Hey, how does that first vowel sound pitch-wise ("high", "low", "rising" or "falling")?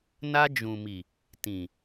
high